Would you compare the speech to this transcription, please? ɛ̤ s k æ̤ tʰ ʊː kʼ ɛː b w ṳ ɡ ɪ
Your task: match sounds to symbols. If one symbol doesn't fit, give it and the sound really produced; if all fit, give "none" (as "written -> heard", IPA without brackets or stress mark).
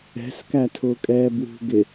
æ̤ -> æ